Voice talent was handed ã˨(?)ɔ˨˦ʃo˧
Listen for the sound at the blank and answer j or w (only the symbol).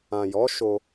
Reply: j